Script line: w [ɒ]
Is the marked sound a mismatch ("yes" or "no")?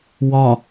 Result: no